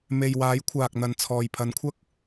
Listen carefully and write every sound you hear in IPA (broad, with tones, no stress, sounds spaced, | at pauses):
m e˨ j w aː˨˥ j kʷʰ aː˨ k̚ n̪ ɐ˨ n t͡sʰ ɔː˨ j pʰ ɐ˨˥ n kʷʰ ɐ˥ k̚